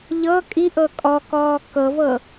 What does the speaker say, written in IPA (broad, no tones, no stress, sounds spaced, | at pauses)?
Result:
ʎ ɤ kʼ i ʔ ɤ kʼ ɔ k ɔː k ɤ v ɤ